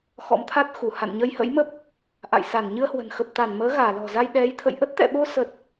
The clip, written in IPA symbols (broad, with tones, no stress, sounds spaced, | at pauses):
x ɔ̰˧˥ m t̪ʰ a˦˥ t̚ x u˧˩ h a̰˧˨ n ɲ ə˧ j h ə̰˧˥ j m ə˦˥ p̚ | ʔ a̰˧˨ j s a˧˩ n ɲ ɨ˧ ə̯ h w ə̤˨˩ n x ə˨˩ p̚ t̪ a˧˩ n m əː˨˦ ɣ aː˧˩ l ɔ̤˨˩ z a˧ j ɗ ɛ˨˦ j t̪ʰ ə̰˧˨ j ʔ ə˦˥ t̚ t̪ ɛ̰˧˨ ɓ o˧ s ə˨˩ t̚